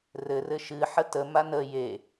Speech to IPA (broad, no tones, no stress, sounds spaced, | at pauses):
r ɘ r ɘ ʃ ɨ ħ ə t ə m a n ə j e